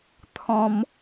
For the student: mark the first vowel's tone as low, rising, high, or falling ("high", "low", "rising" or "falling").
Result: high